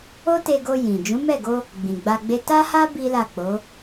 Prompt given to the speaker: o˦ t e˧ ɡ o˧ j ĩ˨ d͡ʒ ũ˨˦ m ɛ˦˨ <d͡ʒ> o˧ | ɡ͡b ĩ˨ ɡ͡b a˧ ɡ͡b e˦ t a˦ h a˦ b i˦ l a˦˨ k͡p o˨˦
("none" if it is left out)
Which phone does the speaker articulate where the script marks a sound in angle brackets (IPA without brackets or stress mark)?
ɡ